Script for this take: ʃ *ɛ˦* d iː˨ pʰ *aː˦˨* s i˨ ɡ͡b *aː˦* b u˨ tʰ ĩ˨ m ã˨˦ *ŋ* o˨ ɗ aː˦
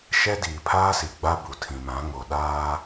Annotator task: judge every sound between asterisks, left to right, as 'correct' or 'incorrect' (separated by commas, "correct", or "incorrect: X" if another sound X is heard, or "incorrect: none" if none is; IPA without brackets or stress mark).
correct, incorrect: aː˦, incorrect: a˦, correct